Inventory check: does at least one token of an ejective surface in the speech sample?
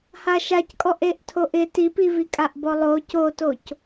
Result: yes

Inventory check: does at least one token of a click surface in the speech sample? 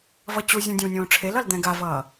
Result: no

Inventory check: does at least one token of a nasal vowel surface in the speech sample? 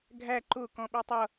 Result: yes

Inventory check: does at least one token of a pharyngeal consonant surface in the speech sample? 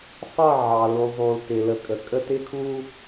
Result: yes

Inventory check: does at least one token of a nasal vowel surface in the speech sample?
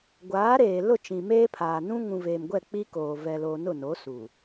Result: yes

